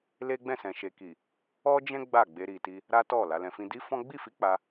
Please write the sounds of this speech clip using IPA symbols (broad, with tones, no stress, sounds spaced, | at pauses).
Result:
l e˦ ɡ͡b ɛ̃˦˨ s ɛ̃˨ ʃ e˨ k i˨ | ɔ˦ d͡ʒ ɛ̃˦ ɡ͡b a˦˨ ɡ͡b e˧ ɾ i˨ t i˧ | ɾ a˦ t ɔ˦˨ l a˨˦ l ɛ̃˧ f ĩ˦ d i˦ f ɔ̃˦ ɡ͡b i˦˨ f i˧ k͡p a˧